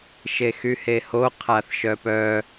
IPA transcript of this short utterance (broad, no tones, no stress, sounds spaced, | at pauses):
ʃ e x y h e h o qʰ a θ ʃ œ p œ